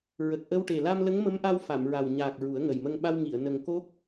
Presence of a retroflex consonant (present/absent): present